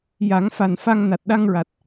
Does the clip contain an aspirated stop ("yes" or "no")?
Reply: no